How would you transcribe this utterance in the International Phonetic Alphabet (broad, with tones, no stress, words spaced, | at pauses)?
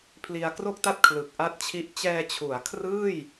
pʰli˧a̯ kro˥˩k̚ta˥˩t̚ kʰlɯ˨˩k̚ʔa˥˩t̚t͡ɕʰi˥˩ʔ t͡ɕɛː˧t͡ɕʰu˩˦a̯kʰrɯː˥˩j